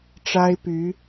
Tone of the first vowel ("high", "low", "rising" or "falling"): high